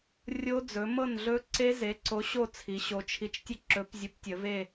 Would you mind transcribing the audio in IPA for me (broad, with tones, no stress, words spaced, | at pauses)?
rʲo˦˥ d͡zɵ˩˧mɤ˥˨nɮɵ˦˥ǀe˦˥ ze˨˥ǀo˨˥ɕo˥˨t͡sʰi˩˧ ɕo˩˧t͡ʃʰi˨˥t͡ʃtʲə˥˨ ǁɵ˨˥pzʲo˨˥ptʲə˩˧ve˥˨